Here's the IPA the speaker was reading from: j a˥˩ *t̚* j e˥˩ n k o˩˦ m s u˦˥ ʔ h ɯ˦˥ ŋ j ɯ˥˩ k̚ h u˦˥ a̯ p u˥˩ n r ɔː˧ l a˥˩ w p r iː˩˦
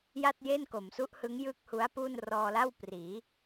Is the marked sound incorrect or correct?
correct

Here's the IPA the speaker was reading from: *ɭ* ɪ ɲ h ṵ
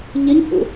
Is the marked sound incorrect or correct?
incorrect: ʎ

